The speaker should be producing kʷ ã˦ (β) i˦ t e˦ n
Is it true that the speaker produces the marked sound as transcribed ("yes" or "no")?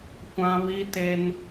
yes